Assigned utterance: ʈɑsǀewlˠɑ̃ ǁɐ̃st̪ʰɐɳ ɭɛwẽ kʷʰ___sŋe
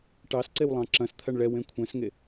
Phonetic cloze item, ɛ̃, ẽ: ɛ̃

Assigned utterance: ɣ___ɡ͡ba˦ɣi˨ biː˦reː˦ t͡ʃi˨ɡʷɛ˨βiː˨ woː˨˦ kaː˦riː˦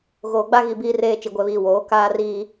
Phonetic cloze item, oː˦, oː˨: oː˨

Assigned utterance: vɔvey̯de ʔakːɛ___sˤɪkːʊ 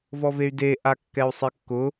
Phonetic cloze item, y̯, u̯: u̯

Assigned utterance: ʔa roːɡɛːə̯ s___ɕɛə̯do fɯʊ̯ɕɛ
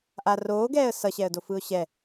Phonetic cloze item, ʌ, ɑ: ʌ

